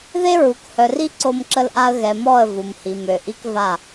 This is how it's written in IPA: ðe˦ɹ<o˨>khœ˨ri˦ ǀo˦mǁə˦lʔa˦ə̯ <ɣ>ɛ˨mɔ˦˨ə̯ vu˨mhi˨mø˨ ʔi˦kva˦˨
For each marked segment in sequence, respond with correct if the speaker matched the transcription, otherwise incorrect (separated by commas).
incorrect, correct